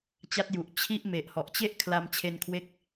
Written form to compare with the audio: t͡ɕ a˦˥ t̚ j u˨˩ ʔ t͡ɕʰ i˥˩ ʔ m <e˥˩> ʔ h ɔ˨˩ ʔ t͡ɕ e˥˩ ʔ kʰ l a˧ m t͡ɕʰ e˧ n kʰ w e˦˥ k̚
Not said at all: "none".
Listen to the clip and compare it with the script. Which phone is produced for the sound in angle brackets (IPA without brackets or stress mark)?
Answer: e˨˩